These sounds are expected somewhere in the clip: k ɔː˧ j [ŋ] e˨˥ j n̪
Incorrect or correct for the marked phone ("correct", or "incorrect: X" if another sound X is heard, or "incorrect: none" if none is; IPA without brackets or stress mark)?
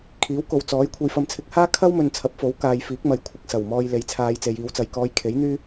incorrect: kʰ